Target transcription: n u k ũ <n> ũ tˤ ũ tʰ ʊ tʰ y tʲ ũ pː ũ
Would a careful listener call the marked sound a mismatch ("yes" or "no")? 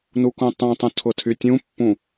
yes